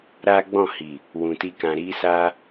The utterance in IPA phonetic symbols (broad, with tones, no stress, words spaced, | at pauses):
ɾa˦ ɡ͡bɔ̃˦˨hi˨ | wũ˨ti˧kã˨ ɾi˧sa˧